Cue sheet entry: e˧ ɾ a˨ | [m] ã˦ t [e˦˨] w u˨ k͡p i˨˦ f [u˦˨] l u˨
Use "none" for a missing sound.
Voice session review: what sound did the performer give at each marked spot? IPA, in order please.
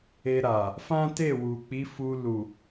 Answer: f, e˦˨, u˧

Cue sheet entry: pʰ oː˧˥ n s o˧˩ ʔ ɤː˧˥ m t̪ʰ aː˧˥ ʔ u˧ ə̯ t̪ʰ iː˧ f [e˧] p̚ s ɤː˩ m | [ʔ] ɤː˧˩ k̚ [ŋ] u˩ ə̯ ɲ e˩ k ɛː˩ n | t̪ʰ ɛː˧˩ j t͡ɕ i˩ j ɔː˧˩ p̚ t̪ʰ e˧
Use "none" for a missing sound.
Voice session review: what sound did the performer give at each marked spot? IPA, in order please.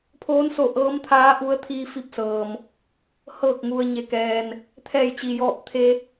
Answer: i˧, h, ŋ

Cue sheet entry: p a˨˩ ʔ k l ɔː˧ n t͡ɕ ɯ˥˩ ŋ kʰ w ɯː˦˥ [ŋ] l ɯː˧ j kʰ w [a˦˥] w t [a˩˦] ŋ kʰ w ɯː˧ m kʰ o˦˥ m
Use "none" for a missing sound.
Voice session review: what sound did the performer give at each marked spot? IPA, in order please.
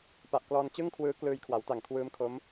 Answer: k, a˩˦, a˨˩

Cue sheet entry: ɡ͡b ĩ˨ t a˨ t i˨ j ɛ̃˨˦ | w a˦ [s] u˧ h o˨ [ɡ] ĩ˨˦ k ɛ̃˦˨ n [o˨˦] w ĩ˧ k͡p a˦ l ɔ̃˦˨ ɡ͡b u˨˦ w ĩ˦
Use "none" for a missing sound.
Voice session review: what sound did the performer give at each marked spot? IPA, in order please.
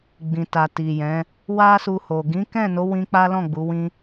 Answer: s, ɡ, o˨˦

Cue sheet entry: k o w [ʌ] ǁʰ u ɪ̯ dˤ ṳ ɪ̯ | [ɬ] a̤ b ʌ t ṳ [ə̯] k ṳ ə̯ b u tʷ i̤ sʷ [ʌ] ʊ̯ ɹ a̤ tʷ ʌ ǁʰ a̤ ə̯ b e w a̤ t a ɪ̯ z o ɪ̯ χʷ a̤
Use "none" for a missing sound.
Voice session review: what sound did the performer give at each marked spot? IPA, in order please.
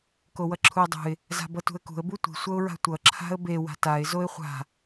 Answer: ʌ, z, ə̯, ʌ

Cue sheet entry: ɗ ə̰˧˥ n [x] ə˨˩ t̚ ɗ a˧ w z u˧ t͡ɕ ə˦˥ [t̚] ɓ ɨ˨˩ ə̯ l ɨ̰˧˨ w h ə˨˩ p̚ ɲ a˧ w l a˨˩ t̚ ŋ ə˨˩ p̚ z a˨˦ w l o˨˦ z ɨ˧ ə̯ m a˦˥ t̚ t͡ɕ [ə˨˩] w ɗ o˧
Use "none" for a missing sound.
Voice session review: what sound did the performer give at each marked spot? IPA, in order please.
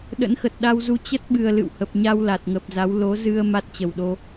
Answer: x, t̚, ə˨˩

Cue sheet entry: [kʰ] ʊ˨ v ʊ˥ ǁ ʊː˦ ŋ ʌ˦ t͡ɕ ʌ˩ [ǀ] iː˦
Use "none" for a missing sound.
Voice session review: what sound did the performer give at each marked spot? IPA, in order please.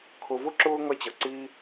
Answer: kʰ, ǀ

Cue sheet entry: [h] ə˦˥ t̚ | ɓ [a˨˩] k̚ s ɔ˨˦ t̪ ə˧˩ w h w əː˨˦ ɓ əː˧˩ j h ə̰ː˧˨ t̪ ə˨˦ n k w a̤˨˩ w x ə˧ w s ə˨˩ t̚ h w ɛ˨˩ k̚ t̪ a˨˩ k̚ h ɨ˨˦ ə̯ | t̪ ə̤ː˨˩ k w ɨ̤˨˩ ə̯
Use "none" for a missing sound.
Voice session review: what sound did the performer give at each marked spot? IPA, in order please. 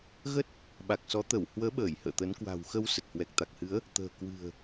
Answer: ɣ, a˨˩

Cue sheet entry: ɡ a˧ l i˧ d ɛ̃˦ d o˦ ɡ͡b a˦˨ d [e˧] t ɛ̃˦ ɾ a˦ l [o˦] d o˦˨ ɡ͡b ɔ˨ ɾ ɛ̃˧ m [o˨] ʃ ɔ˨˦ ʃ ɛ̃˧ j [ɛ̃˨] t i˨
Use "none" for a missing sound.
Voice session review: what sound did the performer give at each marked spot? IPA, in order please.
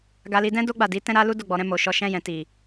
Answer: i˧, u˦, o˨, ɛ̃˨

